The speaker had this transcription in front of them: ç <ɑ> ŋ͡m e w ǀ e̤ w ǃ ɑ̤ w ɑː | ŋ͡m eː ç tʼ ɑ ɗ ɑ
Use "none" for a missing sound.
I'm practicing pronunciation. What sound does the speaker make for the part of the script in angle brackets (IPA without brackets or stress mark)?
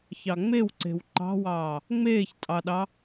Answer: ɑ